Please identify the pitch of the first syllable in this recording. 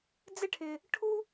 high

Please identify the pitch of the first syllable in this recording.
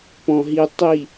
low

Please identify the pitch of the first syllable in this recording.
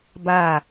falling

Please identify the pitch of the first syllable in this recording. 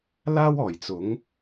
high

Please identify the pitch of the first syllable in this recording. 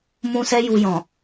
high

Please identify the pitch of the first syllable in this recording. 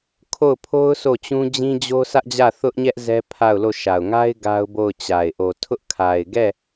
falling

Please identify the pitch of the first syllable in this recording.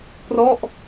falling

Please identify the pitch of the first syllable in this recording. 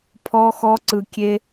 high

